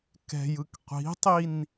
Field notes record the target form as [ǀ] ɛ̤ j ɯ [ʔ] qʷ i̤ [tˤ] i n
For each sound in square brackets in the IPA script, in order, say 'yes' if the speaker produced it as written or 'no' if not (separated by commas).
no, no, yes